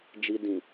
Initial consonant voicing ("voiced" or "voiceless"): voiced